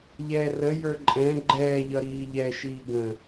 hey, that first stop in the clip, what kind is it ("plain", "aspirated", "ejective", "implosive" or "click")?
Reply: click